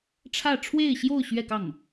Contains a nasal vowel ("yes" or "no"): no